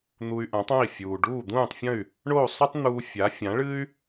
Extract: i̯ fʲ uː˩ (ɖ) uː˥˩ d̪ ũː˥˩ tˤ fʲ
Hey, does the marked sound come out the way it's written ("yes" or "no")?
yes